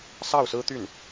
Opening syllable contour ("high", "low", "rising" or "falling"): falling